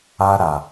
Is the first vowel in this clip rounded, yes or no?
no